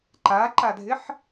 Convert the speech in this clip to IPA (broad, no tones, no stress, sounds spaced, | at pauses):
ǃ a ǃ a dʱ ɪ ħ